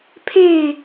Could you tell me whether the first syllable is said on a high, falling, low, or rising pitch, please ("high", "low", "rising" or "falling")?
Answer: falling